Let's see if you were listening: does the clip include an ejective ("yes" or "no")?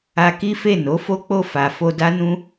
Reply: no